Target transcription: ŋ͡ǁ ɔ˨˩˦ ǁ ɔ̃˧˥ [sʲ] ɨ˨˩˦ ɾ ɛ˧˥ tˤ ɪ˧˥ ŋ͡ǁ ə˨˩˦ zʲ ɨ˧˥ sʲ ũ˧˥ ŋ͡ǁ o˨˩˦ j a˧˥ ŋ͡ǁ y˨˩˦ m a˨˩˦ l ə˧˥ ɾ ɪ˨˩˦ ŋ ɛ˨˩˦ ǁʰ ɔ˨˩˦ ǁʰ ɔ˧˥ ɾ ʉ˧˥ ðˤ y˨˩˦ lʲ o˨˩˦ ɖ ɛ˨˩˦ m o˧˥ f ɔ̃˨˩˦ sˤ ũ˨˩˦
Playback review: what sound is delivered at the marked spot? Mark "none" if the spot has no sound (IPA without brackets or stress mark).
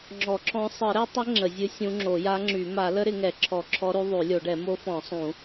sˤ